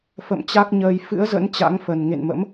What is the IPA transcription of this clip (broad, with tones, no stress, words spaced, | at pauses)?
fə̰˧˨mt͡ɕa˦˥k̚ɲəː˧j fɨ̰˧˥ə̯zə̰˧˥n t͡ɕa̰˧˥ŋfə˨˩n ŋḛ˧˨nmə̰˧˥m